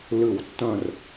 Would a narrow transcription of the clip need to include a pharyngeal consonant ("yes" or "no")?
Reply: no